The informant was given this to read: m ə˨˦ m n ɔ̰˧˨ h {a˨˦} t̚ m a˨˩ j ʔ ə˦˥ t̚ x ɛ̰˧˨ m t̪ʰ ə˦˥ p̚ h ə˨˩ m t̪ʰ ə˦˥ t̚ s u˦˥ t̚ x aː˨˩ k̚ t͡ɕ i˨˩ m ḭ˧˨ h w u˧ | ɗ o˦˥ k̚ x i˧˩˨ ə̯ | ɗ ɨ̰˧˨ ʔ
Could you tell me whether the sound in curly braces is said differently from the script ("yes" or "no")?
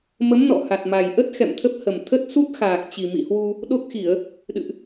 yes